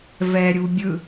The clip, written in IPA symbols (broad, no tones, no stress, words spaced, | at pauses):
vɛɾʲu bʲɯ